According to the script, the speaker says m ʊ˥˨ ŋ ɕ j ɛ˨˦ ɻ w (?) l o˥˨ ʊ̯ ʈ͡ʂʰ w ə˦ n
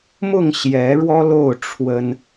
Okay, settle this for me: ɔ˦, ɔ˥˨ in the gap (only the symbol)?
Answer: ɔ˦